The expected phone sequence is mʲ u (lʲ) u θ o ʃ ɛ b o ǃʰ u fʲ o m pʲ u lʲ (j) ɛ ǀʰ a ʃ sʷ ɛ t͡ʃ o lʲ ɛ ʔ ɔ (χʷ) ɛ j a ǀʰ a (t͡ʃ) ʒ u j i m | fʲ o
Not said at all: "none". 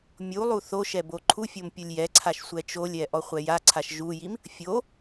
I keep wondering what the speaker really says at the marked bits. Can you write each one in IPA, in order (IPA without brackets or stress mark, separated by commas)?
lˠ, j, χʷ, ʃ